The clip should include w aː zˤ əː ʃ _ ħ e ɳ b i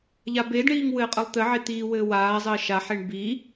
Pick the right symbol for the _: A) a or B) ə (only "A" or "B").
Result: A